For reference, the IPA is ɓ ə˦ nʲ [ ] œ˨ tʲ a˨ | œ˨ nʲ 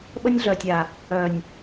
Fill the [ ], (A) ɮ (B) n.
A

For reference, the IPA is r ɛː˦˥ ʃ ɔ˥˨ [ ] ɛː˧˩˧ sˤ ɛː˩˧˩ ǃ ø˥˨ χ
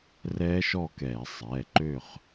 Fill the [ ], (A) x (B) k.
B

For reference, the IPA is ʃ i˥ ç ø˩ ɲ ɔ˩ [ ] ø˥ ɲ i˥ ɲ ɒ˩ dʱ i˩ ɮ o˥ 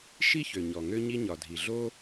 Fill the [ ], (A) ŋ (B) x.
A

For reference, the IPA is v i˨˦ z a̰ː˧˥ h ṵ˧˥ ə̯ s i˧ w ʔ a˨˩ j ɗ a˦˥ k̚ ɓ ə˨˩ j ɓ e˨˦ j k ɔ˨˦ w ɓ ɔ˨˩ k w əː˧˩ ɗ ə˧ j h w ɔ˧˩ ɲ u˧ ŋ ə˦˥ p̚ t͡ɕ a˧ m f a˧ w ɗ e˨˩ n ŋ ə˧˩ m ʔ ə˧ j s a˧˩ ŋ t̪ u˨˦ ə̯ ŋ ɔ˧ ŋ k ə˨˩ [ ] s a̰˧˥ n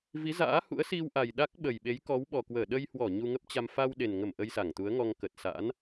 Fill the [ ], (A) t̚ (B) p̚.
A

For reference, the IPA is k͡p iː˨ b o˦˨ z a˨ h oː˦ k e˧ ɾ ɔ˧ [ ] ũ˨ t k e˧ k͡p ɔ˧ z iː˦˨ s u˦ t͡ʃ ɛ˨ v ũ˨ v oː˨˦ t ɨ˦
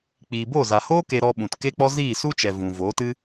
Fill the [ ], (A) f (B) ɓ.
B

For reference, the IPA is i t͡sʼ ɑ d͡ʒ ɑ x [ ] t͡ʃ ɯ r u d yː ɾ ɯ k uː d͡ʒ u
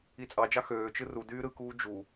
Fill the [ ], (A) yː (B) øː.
B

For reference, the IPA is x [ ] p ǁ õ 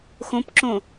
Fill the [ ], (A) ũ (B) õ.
B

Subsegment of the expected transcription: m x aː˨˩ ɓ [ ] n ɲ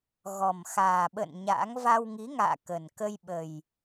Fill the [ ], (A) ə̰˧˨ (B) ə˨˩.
A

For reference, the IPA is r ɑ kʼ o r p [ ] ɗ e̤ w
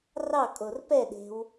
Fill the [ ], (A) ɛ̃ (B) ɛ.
B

